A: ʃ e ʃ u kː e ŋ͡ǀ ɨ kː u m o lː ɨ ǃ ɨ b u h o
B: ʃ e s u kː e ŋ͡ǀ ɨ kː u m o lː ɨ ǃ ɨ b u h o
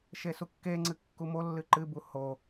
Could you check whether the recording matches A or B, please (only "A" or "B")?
B